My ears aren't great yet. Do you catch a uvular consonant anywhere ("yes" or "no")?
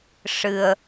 no